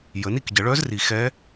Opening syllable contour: rising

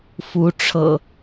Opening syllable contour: rising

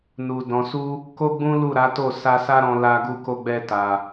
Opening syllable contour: low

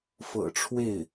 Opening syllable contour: low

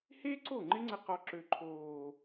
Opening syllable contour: high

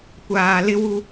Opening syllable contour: low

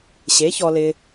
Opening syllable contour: rising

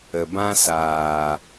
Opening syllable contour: low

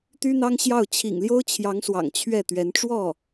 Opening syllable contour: high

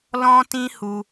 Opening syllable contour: high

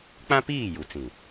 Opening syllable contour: high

